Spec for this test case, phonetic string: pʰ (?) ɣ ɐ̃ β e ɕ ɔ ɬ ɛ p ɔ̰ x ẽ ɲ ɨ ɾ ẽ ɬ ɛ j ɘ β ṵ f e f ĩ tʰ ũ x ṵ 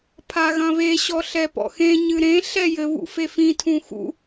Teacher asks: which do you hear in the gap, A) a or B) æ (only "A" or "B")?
A